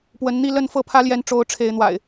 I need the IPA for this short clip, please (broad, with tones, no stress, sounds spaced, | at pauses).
p w ə˨˦ n n̪ i˥˨ l ə˥˨ n f ɤ˥˨ pʰ ä˦ l j ɛ˨˦ n ʈ͡ʂ o˨˦ ʊ̯ ʈ͡ʂʰ e˨˦ ɪ̯ n̪ w a̰˨˩ ɪ̯